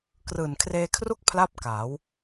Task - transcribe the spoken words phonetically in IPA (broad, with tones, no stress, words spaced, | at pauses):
krɯː˨˩nkʰreː˧kʰru˥˩k̚ pʰla˥˩p̚kaː˩˦w